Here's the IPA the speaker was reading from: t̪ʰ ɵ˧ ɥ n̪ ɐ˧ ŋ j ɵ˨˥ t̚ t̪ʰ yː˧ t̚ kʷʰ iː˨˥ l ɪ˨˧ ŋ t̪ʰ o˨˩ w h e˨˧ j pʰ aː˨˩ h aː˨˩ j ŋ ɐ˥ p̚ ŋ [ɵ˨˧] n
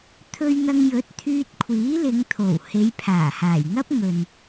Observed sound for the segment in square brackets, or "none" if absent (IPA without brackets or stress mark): ɵ˨